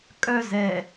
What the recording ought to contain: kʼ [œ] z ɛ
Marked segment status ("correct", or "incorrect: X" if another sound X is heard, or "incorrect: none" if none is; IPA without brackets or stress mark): correct